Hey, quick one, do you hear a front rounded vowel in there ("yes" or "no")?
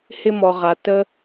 no